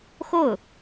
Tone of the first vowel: falling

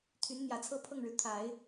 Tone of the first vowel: rising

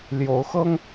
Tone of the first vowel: rising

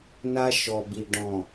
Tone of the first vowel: high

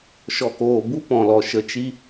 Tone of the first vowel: low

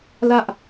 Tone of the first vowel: high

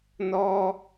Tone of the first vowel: high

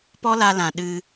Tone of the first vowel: high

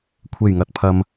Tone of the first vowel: low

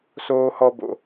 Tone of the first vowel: high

